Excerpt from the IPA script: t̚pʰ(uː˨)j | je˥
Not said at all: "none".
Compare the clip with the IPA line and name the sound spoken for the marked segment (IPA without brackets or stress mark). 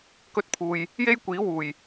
uː˨